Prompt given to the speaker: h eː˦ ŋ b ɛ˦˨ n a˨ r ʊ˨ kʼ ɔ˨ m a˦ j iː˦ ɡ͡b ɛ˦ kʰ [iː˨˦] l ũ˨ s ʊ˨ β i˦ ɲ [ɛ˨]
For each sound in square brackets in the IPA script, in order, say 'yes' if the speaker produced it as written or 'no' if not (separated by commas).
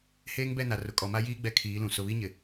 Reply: yes, no